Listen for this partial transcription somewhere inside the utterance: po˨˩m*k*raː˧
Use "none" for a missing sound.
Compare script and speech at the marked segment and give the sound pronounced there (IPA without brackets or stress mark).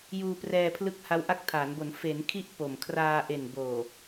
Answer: kʰ